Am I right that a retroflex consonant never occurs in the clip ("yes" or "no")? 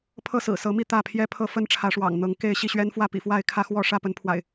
no